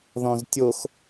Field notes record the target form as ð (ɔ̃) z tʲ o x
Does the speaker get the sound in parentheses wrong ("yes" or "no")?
no